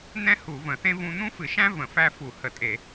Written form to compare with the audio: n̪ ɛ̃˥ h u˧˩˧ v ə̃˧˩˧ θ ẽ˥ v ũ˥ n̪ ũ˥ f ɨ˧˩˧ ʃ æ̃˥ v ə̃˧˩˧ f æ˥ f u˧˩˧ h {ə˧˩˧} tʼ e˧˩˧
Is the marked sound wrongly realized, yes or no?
no